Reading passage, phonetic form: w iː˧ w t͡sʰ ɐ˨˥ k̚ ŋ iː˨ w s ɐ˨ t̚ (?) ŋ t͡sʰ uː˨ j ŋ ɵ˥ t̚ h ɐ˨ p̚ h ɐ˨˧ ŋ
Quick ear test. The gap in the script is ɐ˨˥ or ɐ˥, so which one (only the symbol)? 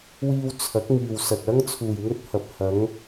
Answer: ɐ˥